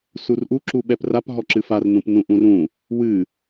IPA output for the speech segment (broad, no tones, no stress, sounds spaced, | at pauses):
s u r ʔ u ǁ u ɓ ɛ p r a p ɦ ɔ ǁ ɨ f a r n ũ p n ũ ʔ ũ r ũ | w ɨ